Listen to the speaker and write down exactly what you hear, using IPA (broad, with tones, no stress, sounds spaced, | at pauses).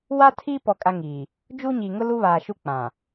w a˦ tʰ i˦ p ɔ˨ kʼ a˦ ŋ iː˨ | d͡ʒ u˦ ɲ i˨ ŋ ʊ˦ l u˦ β aː˨ ʃ u˦ k͡p ã˨